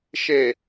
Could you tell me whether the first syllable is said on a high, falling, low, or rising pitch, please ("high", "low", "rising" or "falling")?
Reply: low